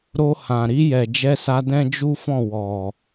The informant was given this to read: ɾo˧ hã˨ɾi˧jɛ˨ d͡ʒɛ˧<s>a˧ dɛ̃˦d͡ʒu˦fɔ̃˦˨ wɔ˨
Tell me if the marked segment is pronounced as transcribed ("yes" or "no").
yes